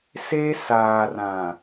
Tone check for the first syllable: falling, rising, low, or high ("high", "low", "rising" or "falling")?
high